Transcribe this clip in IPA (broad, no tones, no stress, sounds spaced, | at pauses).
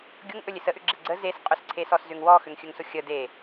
ɡʲ ʊ ŋ ʔ ɵ lʲ e s ə ʔ ʏ ɡ͡ǁ e ɡ͡ǀ ə z e s qʼ ɵ s ǀʰ e s ɔ s z ʏ ŋ w ɔ x ʏ ŋ xʲ ɵ ŋ s ʊ xʲ ə d e